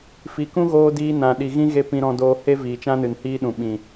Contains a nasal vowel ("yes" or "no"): yes